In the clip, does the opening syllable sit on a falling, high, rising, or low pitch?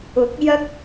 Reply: rising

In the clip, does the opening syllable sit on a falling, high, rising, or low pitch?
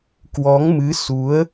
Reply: rising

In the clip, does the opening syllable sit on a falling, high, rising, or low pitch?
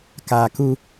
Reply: low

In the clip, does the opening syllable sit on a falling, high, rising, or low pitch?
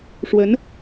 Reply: rising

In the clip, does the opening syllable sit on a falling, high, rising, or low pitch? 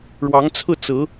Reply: rising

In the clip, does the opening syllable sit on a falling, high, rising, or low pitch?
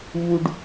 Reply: high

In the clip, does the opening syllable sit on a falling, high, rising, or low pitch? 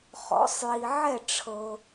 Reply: rising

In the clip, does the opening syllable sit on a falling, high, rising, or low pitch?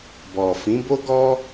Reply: low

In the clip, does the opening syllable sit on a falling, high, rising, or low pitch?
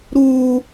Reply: high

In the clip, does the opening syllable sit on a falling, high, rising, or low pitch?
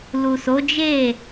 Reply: low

